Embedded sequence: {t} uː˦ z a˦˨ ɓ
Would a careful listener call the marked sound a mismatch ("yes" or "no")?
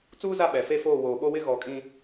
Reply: yes